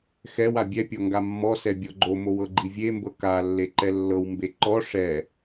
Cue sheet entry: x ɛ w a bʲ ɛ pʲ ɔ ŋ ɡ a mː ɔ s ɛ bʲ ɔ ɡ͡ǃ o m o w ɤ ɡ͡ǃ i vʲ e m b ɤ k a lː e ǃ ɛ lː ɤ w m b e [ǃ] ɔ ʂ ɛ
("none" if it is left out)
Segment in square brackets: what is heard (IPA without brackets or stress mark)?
ǃ